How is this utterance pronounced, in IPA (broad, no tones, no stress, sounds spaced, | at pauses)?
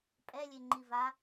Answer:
pʼ ɛ lʲ e ŋ͡ǃ i v a